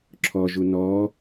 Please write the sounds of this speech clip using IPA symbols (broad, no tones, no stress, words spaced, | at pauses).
ǁʰɔʒu nɔ